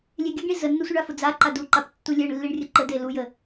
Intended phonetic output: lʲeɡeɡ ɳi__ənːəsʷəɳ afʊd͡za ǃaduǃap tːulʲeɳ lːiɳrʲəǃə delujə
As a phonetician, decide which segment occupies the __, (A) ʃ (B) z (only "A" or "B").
B